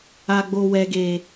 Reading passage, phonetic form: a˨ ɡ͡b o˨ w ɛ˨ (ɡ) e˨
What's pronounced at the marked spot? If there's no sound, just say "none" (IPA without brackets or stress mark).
ɡ